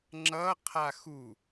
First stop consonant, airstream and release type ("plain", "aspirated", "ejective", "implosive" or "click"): click